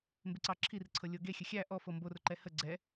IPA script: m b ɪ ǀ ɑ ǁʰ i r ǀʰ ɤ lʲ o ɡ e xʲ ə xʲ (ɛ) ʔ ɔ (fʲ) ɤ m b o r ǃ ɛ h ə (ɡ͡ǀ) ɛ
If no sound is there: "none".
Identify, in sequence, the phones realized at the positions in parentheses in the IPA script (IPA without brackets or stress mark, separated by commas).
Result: æ, f, ɡ͡ǀ